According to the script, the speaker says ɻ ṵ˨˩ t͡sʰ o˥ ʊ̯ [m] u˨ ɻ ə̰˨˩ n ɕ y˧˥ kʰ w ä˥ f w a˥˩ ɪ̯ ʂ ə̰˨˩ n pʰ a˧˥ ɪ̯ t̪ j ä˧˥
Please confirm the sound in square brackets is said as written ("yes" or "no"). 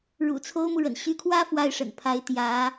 yes